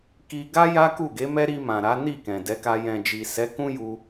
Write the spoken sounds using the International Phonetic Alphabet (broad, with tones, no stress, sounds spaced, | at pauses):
k i˧ ɡ a˦ j a˦ k u˦˨ ɡ e˨˦ m ɛ˦ ɾ i˧ m ã˨ ɾ a˨˦ n i˦˨ k ɛ̃˨ d ɛ˨˦ k a˧ j ɛ̃˨ d͡ʒ i˨ s ɛ˨˦ k ũ˦ j u˧